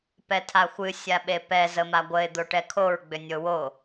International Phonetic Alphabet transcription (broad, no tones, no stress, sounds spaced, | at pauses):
p ɛ tʰ a xʷ ɨ sʲ a ɓ e p ɛ z ə m a ɡʷ ə ɪ̯ d̪ o ʈ ɛ kʰ o ɹ ɡ͡b ʏ nʲ o w o